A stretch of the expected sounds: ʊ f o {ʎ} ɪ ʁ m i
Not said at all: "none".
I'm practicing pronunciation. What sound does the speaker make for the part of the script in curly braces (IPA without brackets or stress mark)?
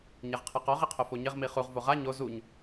ɲ